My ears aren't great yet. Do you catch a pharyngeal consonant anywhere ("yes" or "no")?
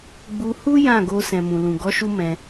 no